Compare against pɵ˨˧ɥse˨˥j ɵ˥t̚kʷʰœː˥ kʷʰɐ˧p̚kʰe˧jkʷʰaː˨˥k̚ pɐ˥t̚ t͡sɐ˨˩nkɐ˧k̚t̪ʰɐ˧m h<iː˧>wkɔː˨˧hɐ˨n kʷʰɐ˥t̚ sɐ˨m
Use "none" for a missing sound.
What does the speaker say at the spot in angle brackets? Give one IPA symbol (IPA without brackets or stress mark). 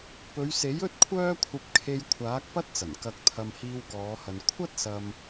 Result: iː˧